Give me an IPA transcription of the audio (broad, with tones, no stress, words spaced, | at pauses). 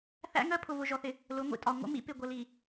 θæ̰˦ŋɜ˦ pʰʊ˨vʊ˨ʒɔ˨θɪ˨ | lʊ˨˦ŋʷḭ˨tʼɒ˨ ŋʷə̰˦mḭ˦ pɪ˨ɡʷə˨li˨